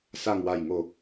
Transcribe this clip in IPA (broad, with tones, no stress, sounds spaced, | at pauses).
s a˨˩ ŋ w a˨˩ j ŋ o˨˩